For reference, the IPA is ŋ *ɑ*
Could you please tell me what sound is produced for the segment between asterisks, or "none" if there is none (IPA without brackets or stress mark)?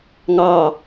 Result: ɑ